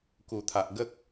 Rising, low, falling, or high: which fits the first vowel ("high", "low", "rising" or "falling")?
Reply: low